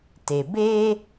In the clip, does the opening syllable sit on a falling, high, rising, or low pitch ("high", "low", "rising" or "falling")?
low